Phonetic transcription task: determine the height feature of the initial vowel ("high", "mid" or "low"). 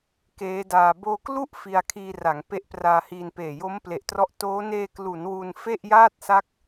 mid